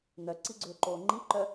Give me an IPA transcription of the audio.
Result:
n̪œǀiɡ͡ǀʏːǃoː ŋ͡ǃiǃœ

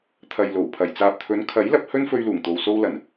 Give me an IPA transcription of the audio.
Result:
t̪ʰɐ˨jlo˨˩wpʰɐ˨˩j t͡saː˨p̚t̪ʰɵ˨˧n kʰɐ˨˥jlɐ˧p̚ hɵ˥nfɵ˧ɥluː˨˩ŋt̪o˨w so˧wlɐ˨˩n

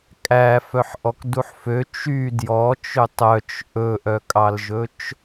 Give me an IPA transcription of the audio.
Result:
kʼæ fœħʔɔkduħfø t͡ʃy djɔt͡ʃø tˤœt͡ʃ ʔɵʔœkʼɑlʒɵt͡ʃ

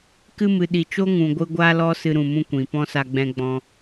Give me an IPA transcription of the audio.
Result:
kɨ˦mɨ˨ ɗi˨t͡ʃo˦ŋũ˨ɡʷɨ˧ ɡʷa˦lɔ˦ sɨ˧ɾũ˨mũ˦ kʷĩ˨ pɔ̃˦sa˧ɡ͡bɛ̃˧ ɡ͡bɔ̃˦

